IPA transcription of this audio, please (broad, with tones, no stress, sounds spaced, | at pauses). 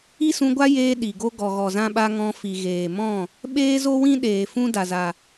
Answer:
i˦ s ũ˧ ɡʷ a˦ j eː˧ ɗ i˨ ɡ o˦ ɡ ɔ˨ ɣ ɔ˨ z ã˧ ɓ a˧ ŋ ɔ̃˧ f i˨ ɣ eː˨ m ɔ̃˦˨ | ɓ eː˦ z o˦ w ĩ˦ ɗ eː˨ f ũ˦ d a˨ z a˨